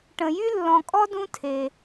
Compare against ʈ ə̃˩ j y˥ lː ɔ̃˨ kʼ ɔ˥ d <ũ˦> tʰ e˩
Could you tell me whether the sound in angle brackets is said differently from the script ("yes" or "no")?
no